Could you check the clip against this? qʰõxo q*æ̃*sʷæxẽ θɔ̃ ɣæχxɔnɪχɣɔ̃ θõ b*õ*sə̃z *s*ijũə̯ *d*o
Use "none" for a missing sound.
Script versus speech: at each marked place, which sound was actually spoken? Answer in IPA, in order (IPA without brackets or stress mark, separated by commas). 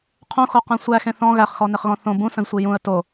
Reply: æ̃, ũ, sʷ, t